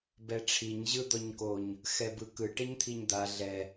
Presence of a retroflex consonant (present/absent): present